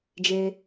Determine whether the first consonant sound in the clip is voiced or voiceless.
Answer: voiced